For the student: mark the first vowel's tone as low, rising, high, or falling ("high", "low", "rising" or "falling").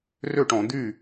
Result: falling